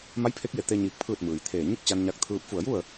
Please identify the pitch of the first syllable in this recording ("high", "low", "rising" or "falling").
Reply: rising